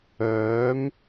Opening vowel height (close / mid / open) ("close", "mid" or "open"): mid